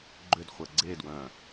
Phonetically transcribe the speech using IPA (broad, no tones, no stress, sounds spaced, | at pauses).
ɡ͡ǃ ʏ d χʷ ə ɡ͡ǀ e d w œ̃